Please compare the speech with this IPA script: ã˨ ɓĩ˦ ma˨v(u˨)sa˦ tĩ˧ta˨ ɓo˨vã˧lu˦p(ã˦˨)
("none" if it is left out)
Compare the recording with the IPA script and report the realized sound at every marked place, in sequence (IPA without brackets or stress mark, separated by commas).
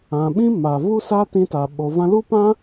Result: u˦, ã˦